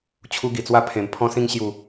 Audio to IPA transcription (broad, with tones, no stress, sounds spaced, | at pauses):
t͡ɕʰ u˦ ɡ i˨˩ t͡s w a˥˧ pʰ ẽ˨˩ m pʰ ɔ̃˧ s ĩ˧ ŋ ɕ j u˨˩